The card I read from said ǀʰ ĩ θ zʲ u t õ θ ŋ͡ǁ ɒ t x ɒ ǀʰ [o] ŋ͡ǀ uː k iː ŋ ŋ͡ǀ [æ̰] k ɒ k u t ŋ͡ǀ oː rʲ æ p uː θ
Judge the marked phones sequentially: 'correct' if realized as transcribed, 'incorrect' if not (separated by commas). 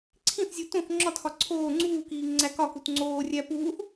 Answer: incorrect, incorrect